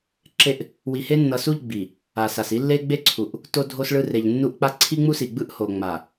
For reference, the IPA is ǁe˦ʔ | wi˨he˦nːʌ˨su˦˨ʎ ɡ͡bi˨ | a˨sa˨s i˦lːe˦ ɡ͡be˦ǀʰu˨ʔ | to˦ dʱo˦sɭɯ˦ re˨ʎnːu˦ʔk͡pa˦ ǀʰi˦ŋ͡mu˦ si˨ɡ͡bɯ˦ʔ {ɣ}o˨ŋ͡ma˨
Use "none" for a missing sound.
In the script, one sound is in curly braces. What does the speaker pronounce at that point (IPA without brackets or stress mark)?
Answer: h